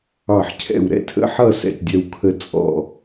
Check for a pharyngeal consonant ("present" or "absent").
present